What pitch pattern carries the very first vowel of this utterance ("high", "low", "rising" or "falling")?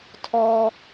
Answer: high